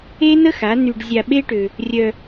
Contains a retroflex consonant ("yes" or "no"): yes